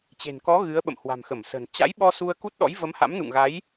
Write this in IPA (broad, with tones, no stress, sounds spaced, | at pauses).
t͡ɕ e̤˨˩ n k ɔ˨˦ ɣ ɨ˨˦ ə̯ ɓ ə̰˧˨ m h w a̤˨˩ m x ə˧˩ m s ə̤˨˩ n t͡ɕ a̰˧˥ j ɓ ɔ˧ s u˧ ə̯ k u˦˥ t̚ ɗ ɔ̰˧˥ j v ə˨˦ m h a̰˧˥ m n ṵ˧˨ ŋ ɣ a˨˦ j